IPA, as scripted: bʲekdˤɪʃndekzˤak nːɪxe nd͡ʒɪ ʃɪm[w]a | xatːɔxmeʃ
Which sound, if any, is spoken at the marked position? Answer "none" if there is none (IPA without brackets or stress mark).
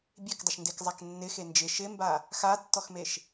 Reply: b